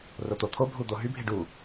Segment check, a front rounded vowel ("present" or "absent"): present